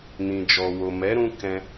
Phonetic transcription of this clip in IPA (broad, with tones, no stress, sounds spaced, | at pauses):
n ĩ˨ d͡ʒ ɔ˨ w o˨ m ɛ˨˦ ɾ ũ˧ k ɛ̃˧